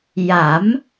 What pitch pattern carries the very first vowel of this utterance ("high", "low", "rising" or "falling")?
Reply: rising